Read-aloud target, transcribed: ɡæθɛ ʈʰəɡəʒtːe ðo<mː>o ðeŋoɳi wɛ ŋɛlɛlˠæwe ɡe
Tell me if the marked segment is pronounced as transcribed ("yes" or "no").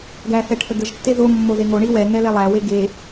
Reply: yes